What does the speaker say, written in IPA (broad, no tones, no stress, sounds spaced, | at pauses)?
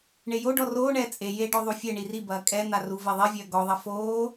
ɳ e j o ɖ ɔ r oː ɳ ɛː t͡sʼ e j e ɖ ɔ ðˤ u fʲ ɛ ɳ i r i b ɐː kʼ ɛ n̪ a r u v e ðˤ i vʲ ɐː ɡ ɔ ðˤ ɐ f oː